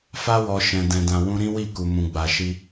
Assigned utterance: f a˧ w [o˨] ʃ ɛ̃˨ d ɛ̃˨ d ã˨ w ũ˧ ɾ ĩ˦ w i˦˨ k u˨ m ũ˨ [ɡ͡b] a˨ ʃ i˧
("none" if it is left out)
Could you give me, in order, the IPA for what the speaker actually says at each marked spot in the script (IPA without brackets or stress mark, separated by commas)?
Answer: ɔ˨, ɡ͡b